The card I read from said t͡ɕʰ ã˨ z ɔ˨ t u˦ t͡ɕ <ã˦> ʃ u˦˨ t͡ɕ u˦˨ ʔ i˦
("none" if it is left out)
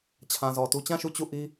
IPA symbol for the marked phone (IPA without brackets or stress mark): ã˦˨